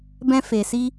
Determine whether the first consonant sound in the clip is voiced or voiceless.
voiced